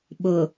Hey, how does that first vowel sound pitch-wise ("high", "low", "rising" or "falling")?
low